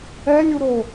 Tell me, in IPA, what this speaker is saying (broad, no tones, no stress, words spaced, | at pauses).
ɛlʲuɾo